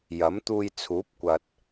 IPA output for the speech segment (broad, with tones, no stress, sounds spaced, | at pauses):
j ɐ˨˥ m t̪ uː˧ j t͡sʰ uː˨˥ p̚ kʷ ɐ˨ t̚